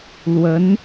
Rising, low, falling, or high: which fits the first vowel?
rising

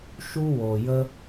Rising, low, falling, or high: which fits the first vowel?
high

